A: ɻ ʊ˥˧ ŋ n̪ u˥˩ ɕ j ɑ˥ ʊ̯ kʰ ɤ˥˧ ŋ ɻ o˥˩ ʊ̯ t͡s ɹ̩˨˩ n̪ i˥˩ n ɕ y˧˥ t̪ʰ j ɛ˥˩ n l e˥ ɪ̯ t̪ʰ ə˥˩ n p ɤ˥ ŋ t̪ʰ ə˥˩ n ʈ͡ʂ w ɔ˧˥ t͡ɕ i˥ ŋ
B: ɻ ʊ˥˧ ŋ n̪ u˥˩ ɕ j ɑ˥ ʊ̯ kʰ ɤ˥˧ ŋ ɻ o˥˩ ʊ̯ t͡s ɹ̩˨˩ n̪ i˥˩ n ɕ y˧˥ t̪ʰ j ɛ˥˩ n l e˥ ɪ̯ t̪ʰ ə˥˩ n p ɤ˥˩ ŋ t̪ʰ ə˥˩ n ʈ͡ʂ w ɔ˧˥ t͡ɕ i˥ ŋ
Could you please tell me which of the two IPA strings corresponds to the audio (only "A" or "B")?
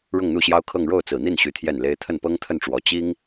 A